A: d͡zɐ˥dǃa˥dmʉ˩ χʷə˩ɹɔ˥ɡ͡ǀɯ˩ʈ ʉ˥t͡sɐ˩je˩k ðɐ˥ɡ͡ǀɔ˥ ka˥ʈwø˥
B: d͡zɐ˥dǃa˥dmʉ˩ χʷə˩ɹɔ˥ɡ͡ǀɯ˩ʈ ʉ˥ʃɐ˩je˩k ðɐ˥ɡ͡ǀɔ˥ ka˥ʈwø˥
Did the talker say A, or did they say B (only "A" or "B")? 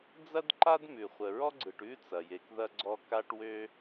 A